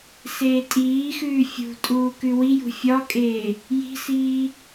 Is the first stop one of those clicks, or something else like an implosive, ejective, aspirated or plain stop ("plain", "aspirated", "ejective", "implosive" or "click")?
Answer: ejective